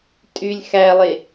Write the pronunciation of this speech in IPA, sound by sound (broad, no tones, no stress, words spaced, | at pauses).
tʼylʲ xælˠe